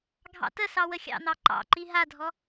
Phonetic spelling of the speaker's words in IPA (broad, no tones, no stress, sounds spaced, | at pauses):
ɡʱ ɑ̰ t ə s ɑ w ə xʲ ɑ̰ n̪ ɑ ǃ ɑ̰ ǃ i ɦ a dʱ ɔ